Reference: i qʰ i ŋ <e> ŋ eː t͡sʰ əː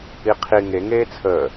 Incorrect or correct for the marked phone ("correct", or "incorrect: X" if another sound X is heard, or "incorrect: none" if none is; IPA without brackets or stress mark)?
correct